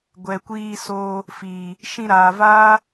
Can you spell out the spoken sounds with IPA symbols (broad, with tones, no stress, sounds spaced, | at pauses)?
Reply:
ɡʷ ɛ˨ kʷ iː˧ s oː˧ | f iː˨ | ʃ ĩ˧ ɾ aː˨ v aː˦